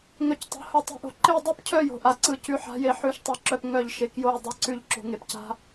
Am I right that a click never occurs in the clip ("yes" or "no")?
no